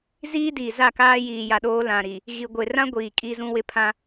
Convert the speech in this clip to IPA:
z iː˦ d iː˨ z a˦˨ k aː˦ j iː˨ j a˨ ɗ oː˦ l ã˨ ɾ i˨ | ɣ i˨ ɡʷ e˨ r ã˦ ɡʷ iː˨ kʼ i˦ z ũ˦ w ɪ˦ pʰ ã˦

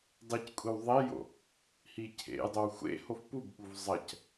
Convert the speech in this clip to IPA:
dˤ e c kʷʼ i w ðˤ e j o̰ | h i cʰ ḛ j dˤ ɵ w xʷ ḛ h o f p u b ɓ u v zˤ ɐ c

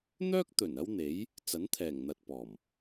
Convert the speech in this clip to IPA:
n̪ œː˥ k̚ t̪ ɵ˨˩ n ɐ˥ w n̪ e˨˥ j | t͡s ɐ˨˥ n t̪ʰ ɛː˨˩ ŋ n̪ ɐ˨ t̚ p ɔː˨˩ m

